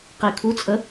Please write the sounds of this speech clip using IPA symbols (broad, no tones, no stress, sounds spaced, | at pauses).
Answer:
q i kʰ u t͡sʼ ə